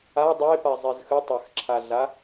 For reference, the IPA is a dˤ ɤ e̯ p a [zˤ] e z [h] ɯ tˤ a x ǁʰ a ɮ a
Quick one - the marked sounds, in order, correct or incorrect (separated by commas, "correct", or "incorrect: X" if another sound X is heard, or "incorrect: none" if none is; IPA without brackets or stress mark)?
correct, incorrect: x